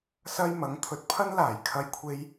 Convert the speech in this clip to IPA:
s ɐ˥ j m ɐ˨˥ ŋ t̪ʰ ɵ˧ t̚ pʰ ɐ˥ n l aː˨˩ j kʰ ɐ˥ j kʷʰ e˥ j

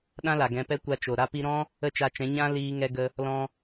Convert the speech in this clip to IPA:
ɗ ã˦ l a˨ ɡ ɛ̃˧ p ɛ˦ kʷ a˧ t͡ʃ o˨ ɾ a˦ p i˦ ɾ ɔ̃˦ | ə˦˨ t͡ʃ a˧ t͡ʃ ɛ̃˨˦ ɲ ã˦ l iː˧ ŋ ɛ˧ ɡ ə˧ | l ɔ̃˧

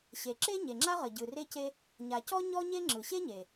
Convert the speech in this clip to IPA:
ɕ e˩ ǁ e˥ ɲ e˩ ŋ͡ǁ a˥ ʁ ə˩ ɟ ɯ˩ r e˥ c e˥ | ɲ a˩ c ɔ˥ ɲ ɔ˥ ɲ e˥ ŋ͡ǁ ɯ˩ ɕ e˥ ɲ e˩

